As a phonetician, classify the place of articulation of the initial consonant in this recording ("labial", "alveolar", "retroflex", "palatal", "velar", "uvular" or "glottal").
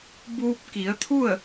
labial